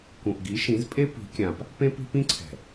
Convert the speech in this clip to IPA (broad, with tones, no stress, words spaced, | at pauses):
kũ˨ʔɡi˨˦ʃĩ˨˦zpʼe˦ pi̤˨˦kʲã˨p | pẽ˦pi̤˦pĩ˦ǀʰɛ̤˨